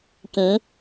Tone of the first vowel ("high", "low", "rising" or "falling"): rising